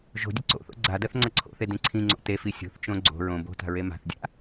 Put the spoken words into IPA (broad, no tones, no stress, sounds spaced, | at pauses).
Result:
ʒ o̤ dʲ ə ǀ o̰ θ o̰ ɡ͡ǀ a d ɜ θ ŋ͡ǀ ʌ ǀʰ o̰ θ e d ĩ ǀʰ ĩ ŋ͡ǀ o̰ t e f i sʲ o̤ θ t͡ʃ õ ɡ͡ǀ o̤ ɹ õ b o̤ t a̤ ɹ e m a̤ θ dʲ a̰